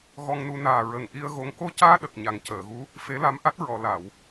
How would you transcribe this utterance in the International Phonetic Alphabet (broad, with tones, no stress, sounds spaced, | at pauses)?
ɣ ɔ˧ ŋ n u˧ n aː˨˩ ɹ ə˨˩ ŋ ʔ i˧ ə̯ ɣ o˧ ŋ k o˧ c aː˧ ɗ ə˨˩ k̚ ɲ a˨˩ ŋ c əː˨˩˨ ɣ u˧˥ | f e˧˥ l a˧˥ m ʔ a˦˥ t̚ ɹ ɔ˨˩˨ l a˨˩˨ w